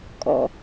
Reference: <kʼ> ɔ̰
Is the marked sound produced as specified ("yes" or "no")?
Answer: yes